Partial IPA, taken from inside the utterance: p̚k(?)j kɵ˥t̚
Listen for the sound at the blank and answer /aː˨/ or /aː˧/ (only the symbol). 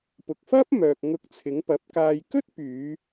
aː˧